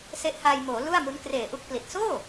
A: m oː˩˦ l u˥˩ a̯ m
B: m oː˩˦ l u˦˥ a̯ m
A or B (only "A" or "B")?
A